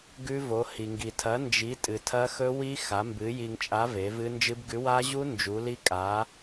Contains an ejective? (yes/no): yes